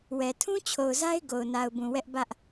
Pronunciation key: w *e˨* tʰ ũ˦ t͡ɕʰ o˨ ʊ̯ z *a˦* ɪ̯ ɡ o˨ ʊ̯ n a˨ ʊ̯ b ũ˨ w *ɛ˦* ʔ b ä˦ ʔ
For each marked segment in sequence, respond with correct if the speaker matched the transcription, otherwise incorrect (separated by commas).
incorrect, correct, correct